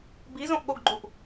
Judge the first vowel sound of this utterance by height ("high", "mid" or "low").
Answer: high